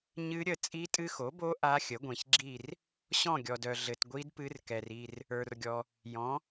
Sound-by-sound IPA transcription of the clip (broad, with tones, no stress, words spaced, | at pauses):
ɲɨ˦˥ɾʲə˦˨ t͡sʼi˦˥tʼɨ˦˥xo˩˥bo˦˥ ʔa˦˥xʲə˩˥ɡʷĩ˨ç ɡ͡ǁi˦˨r | ɕɔ̃˦˨ɡʲɔ˨dœ˨ ɮɘ˨tɡʷi˦˥d pɨ˦˥r kɛ˨ri˦˨r | ə˞˨rɡʲɔ˨ | jɔ̃˩˥